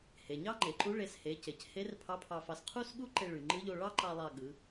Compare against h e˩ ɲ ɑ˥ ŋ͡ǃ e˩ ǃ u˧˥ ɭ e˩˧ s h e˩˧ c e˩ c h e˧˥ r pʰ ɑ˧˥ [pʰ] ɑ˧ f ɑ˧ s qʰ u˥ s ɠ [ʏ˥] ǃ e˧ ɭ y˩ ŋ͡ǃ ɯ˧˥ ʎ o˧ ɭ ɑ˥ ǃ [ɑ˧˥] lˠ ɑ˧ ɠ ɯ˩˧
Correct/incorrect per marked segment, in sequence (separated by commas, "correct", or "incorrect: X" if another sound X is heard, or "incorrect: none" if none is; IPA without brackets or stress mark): correct, incorrect: u˥, incorrect: ɑ˧